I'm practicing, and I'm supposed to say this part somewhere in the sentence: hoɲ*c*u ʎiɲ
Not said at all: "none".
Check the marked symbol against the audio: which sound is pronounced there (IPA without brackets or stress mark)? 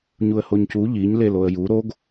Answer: c